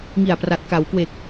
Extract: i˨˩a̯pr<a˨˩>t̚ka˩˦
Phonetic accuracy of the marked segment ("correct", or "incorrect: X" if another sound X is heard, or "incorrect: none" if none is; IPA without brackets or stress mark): correct